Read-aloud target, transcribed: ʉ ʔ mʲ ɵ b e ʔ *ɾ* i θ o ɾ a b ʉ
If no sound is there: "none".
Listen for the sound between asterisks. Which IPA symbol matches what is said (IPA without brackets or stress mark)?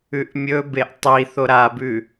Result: tˤ